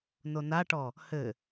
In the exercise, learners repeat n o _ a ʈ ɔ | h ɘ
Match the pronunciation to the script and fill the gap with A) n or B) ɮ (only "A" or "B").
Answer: A